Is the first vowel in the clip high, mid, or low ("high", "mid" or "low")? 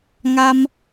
low